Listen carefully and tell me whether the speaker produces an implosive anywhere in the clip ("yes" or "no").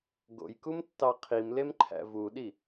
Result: yes